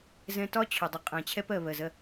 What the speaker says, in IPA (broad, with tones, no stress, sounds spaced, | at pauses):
z ɛ̃˧ t ɒ˦ t͡ɕʰ ʊ˨ dˤ ʊ˨ qʼ æ̃˨ t͡ɕʰ ɛ˧ p ɜ˨ β ɜ˨ z ɜ˧